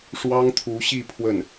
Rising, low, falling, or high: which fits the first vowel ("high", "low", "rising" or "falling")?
high